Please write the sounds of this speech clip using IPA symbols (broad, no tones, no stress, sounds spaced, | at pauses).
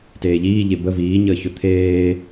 t eː ʎ iː ʎ e b ə v iː ɲ əː ç ɵ t̪ʰ eː